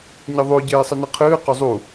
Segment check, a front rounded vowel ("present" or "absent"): absent